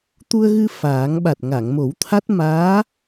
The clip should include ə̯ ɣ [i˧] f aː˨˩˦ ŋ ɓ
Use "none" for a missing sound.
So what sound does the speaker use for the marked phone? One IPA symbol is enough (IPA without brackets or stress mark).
ɨ˧